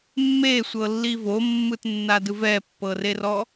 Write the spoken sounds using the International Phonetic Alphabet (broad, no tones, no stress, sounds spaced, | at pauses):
mː e sʷ ɤ lː i v o mː ɯ t nː a d ɯ v ɛ pː ɤ r e r ɔ